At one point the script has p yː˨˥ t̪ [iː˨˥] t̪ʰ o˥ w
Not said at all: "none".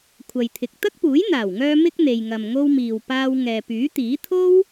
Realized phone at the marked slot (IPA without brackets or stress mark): iː˨˥